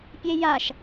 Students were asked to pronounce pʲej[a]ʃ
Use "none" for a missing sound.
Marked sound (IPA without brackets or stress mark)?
a